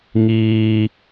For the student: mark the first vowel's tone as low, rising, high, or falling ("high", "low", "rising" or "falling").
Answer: high